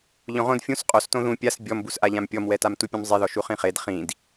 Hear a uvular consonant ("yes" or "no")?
yes